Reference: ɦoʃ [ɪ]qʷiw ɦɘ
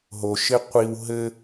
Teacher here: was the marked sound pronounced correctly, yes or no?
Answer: yes